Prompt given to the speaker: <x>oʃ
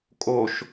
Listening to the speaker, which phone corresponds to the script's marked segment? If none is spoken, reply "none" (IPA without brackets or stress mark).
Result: kʼ